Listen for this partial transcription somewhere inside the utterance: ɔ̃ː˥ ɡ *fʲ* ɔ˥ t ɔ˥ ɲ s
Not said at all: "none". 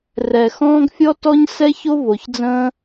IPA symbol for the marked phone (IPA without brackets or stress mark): fʲ